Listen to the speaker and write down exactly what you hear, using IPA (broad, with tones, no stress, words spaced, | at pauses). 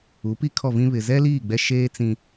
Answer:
u˨˦pi˦kʰɔ˦˨vĩ˦ βɪ˨zɛ˦liː˦˨ ɡ͡bɛ˦ʃeː˦ t͡sĩ˦